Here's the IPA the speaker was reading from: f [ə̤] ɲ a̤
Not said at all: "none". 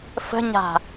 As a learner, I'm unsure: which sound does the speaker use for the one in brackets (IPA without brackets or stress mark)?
ə̤